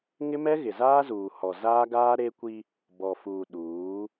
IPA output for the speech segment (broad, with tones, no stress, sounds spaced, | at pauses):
ŋ ɪ˦ m ɛ˦ ɣ ɪ˨ z aː˦ z uː˨ h ɔ˨ z aː˦ ɡ aː˦ ɾ e˦ kʷ i˦ | b ɔ˨ f uː˨ ɗ uː˨˦